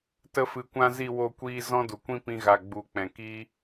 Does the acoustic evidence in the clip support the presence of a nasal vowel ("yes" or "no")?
yes